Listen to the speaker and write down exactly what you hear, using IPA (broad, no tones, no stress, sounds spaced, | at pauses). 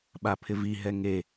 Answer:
ɓ a pʰ ɪ v i ɦ ɛ ŋ e